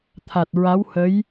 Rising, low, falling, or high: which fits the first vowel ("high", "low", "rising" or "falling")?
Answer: low